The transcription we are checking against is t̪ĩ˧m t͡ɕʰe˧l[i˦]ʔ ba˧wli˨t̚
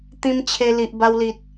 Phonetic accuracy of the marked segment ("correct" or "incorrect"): incorrect